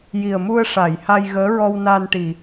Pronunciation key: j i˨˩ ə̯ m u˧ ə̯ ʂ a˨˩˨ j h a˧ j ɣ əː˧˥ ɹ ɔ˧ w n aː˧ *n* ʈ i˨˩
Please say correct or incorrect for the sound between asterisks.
correct